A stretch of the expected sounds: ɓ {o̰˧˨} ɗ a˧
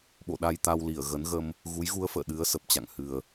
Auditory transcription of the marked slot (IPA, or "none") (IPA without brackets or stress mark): o̰˧˨